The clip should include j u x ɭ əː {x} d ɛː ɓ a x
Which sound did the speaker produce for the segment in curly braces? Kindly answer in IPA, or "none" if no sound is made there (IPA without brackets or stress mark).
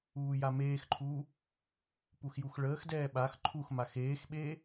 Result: x